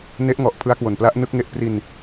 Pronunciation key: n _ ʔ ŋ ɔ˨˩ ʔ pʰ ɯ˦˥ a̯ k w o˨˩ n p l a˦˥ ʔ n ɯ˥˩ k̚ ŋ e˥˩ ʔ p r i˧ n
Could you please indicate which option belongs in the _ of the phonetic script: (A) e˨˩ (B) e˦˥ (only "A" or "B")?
B